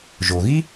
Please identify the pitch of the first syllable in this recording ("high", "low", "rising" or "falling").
low